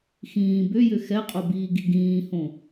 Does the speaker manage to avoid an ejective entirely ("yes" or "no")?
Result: no